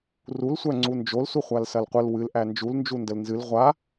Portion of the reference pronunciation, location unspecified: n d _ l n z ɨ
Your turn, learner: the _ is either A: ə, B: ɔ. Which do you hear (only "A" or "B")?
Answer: A